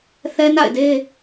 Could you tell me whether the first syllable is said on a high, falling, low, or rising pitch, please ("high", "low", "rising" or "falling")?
high